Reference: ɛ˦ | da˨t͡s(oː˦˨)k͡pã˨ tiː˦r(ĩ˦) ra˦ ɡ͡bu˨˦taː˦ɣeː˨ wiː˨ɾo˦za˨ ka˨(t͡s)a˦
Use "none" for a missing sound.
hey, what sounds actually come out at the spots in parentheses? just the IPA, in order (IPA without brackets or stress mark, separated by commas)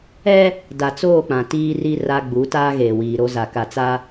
oː˦˨, i˦, t͡s